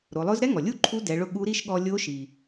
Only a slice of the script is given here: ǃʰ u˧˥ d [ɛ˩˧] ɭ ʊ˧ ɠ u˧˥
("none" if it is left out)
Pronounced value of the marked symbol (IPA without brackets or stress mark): ɛ˩˧